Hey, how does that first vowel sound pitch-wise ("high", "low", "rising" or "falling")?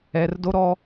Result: low